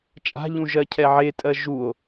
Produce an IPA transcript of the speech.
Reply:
t͡ʃʼa̤ʎũ ʒɜcʰɛʕetʼɜ ʒuo̯

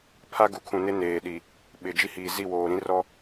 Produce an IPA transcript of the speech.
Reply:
pʰa˦ɡu˨kʰũ˨nɪ˦ neː˨ɗi˨ | ɓɪ˨ d͡ʒi˦hiː˨zi˦˨ woː˨ ɾĩ˦rɔ˦

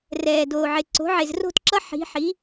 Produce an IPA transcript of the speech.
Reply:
rɛː˨˩doː˨˩ʕe˨˩ ǀo̤˩˥ʕe˨˩zro̤˥˨tǁʌ˧˥ ħi̤˩˥ħi˩˥

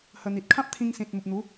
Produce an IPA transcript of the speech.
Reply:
hə˧ n̪i˨t̚kʰã˦p̚ t̪ʰĩ˧ŋsĩ˨t̚ mu˨p̚n̪u˨˦

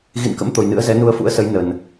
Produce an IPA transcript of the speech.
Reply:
ɣḭ˧˨nkə̰˧˥m t̪o˨˩jnɨ̰˧˥ə̯zɛ˨˦ nu˧ə̯fṵ˧˥ə̯sə˨˦j nə˨˩n

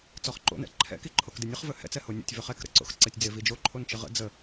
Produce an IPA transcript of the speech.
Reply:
t͡sɔχǃo̰nɛ̰ ǃʰɛ̰ki ǃʰokdɪnʲəχ vɵhɛ̰t͡sɛ honʲo̰tʲ vɵχɛkɾə̰ ǀo̰xǀɛtʲd͡zɪ vid͡ʒo ǃʰont͡ʃɪʁə̰ d͡zə

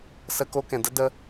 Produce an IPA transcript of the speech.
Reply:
sə˦ko˦kɛ̃˨ də˦də˧

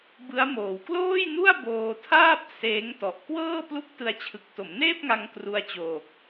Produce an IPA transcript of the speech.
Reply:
bɯ˦˥a̯ moː˨˩wkloː˥˩jnu˥˩a̯ boː˧tʰaː˥˩p̚ seː˦˥ŋ tɔ˨˩ʔkwɤː˥˩ plu˦˥k̚tɯ˧a̯t͡ɕʰɯ˨˩k̚to˩˦m neː˥˩p̚ŋa˧ŋ kru˧a̯t͡ɕoː˨˩k̚

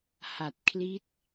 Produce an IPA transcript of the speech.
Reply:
ha˨˩t̚ kʰli˦˥t̚

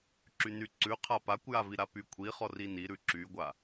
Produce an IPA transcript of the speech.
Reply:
ǁynyǀʉ qʰapakʷjavi ɾapykʷʰiχɔ riniɾʉ ǁyɡʷa

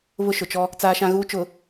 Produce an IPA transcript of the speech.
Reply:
βʊ˦ʃʊ˨t͡ʃɔ˦ | t͡saː˦ʃã˦ɣuː˦ t͡ʃʊ˨

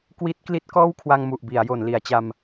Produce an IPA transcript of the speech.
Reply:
kwi˦˥t̚kli˦˥t̚kɔː˥˩wkʰwa˧ŋ mu˨˩ʔbi˩˦a̯ jo˩˦nli˩˦a̯t͡ɕa˧m

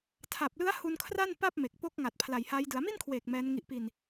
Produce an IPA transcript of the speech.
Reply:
tʰa˨˩p̚lɯ˦˥a̯ hu˧nkʰra˥˩n pa˥˩p̚me˨˩k̚ po˦˥k̚ ŋa˨˩t̚pʰla˨˩jha˦˥j dɯ˩˦a̯mi˥˩nkʰweː˨˩k̚ mɛː˦˥nŋi˦˥ʔ pi˧n

